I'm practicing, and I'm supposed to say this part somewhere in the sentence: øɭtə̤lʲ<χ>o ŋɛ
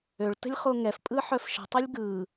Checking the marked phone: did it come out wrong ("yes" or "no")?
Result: no